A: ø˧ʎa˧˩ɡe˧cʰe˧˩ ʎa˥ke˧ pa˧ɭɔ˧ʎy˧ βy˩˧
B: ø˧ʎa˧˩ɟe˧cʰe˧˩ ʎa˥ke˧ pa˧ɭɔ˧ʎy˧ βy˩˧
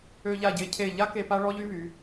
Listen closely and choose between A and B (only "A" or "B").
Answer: B